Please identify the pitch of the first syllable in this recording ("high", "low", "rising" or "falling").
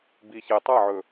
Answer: low